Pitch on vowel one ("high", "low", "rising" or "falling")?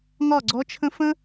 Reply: falling